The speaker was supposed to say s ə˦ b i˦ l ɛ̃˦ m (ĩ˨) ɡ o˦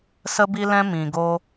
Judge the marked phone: incorrect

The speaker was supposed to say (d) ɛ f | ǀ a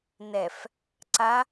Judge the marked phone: incorrect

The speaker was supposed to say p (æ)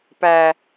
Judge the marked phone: correct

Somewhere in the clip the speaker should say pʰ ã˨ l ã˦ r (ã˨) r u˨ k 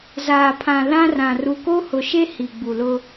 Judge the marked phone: correct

